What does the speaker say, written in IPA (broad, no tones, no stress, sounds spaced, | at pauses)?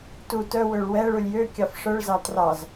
t u t œ w ø ɭ w ɛ ɭ u lʲ j ø kʲ ɑ f ʂ œ ɭ z ɑ t r ɑ z